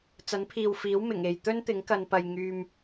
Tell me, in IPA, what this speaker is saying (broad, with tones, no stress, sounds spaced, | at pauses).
t͡s ɐ˨˥ n pʰ iː˨ w f iː˨˥ w m ɪ˨˩ ŋ e˨ j t̪ ɵ˥ n t̪ ɪ˨˥ ŋ k ɐ˧ n p ɐ˧ j ŋ yː˧ m